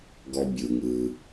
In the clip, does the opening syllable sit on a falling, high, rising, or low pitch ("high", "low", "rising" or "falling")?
high